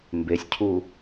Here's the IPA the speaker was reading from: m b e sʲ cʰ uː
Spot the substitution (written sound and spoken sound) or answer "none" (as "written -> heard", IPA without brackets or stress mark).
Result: none